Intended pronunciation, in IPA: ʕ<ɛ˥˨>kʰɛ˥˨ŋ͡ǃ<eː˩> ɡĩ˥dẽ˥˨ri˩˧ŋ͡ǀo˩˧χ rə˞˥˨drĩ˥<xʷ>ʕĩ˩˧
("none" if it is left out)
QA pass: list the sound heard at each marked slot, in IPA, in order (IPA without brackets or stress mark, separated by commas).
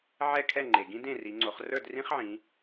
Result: ɛ˥˨, e˩, χ